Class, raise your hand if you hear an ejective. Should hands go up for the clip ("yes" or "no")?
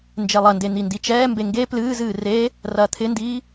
no